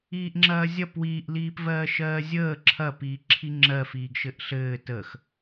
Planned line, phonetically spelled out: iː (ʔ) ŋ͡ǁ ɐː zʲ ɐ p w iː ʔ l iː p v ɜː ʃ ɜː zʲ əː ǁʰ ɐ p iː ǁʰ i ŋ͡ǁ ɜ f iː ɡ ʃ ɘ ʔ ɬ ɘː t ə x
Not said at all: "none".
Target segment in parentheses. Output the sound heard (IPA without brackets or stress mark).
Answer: ʔ